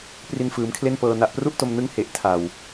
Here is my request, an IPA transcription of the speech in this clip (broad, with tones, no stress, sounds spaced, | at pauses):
p r i˧ n f ɯː˩˦ m kʰ l e˥˩ n p ɤː˧ n a˨˩ ʔ p r u˥˩ ʔ t o˧ m n ɯ˦˥ ŋ h e˨˩ ʔ tʰ a˨˩ w